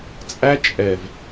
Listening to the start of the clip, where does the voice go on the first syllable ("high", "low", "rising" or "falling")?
high